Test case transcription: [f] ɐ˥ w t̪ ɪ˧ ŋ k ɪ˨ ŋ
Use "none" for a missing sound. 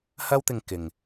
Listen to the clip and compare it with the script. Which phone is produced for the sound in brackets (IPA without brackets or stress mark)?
h